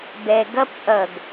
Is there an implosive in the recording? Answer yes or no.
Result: no